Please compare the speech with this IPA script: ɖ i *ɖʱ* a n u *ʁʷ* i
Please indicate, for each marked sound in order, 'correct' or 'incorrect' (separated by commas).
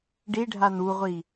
correct, correct